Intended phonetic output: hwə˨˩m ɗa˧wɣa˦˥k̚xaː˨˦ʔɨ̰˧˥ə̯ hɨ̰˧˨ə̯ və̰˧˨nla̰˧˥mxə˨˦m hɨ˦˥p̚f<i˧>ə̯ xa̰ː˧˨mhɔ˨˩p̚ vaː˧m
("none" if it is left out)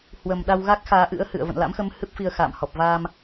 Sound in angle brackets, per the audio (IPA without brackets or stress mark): i˧